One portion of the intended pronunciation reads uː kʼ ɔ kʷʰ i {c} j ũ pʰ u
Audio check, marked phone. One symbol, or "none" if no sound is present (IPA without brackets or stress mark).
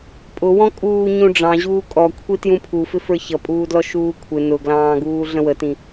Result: t